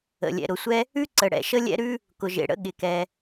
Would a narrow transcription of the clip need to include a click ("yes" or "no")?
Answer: yes